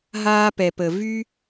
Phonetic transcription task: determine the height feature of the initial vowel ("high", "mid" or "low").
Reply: low